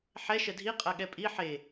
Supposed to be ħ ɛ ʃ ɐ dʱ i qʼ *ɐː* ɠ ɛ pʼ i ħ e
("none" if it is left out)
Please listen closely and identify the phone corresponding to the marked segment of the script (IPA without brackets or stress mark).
ɐ